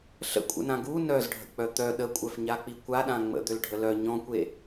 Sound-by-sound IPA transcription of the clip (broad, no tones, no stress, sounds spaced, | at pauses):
ɬ ə̰ kʷʼ ə̰ n ã ɡ u n œ z ɖʱ ə̰ k͡p œ t̪ œ ɗ ə kʷʼ œ f ɲ a k͡p i kʷ a ɗ ã ŋ͡m ə̰ d̪ ø l ɖʱ ə l œ ɲ ɔ̃ kʷ e